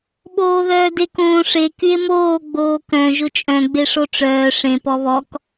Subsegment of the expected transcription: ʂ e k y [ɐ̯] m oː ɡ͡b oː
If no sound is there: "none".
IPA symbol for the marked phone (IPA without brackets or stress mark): e̯